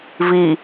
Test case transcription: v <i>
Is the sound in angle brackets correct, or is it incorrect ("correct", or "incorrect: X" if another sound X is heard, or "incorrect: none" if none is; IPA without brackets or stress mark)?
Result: correct